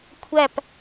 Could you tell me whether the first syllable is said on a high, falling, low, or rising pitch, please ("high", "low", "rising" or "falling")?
falling